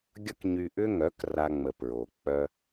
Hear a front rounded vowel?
yes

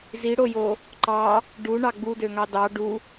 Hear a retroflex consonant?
yes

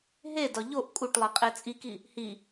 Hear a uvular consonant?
yes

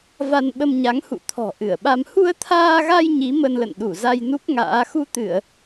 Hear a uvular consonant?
no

